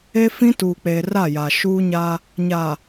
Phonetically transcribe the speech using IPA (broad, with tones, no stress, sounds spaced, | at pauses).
e˦ f ĩ˦ t uː˨ k͡p eː˨ r a˦˨ j a˨ ʃ uː˦ ɲ a˦ | ɲ a˨